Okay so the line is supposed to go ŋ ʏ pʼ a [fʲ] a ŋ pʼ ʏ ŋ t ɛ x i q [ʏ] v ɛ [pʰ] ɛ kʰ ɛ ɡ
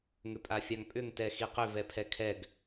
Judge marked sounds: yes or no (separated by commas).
yes, yes, yes